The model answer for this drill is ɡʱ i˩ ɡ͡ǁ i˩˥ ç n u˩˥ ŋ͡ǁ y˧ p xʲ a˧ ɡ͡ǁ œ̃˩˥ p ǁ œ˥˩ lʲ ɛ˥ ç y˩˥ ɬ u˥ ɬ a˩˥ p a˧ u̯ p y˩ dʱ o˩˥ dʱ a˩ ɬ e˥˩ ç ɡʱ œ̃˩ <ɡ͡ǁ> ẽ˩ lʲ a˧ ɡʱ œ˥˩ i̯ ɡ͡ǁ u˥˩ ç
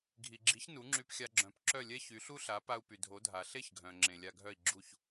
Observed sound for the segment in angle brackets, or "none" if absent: ŋ͡ǁ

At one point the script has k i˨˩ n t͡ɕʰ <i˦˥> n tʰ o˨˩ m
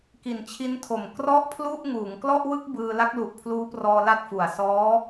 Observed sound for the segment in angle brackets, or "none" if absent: i˦˥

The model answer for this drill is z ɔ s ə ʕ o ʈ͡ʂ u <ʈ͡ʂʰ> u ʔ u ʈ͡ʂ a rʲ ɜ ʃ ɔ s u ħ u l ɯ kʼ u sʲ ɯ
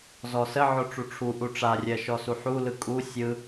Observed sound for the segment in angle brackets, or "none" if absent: ʈ͡ʂʰ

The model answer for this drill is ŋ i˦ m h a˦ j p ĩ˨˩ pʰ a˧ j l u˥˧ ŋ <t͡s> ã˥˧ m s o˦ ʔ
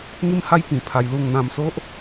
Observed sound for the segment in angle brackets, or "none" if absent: n̪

